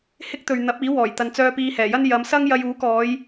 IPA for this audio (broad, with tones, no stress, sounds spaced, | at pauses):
h ɪ˥ k̚ t̪ ɵ˨ ɥ n̪ ɐ˨˥ p̚ iː˨˥ w ɔː˨˩ j t̪ ɐ˨ n t͡s œː˧ p iː˧ h ɛː˨˩ j ɐ˥ n j ɐ˨˧ m s ɐ˥ ŋ j ɐ˧ j uː˨˥ k ɔː˨˧ j